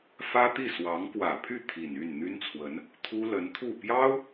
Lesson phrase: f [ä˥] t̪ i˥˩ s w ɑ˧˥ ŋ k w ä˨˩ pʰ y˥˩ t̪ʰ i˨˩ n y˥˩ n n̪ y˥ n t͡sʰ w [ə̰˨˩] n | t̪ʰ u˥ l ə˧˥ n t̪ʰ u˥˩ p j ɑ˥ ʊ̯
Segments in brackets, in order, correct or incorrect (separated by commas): correct, incorrect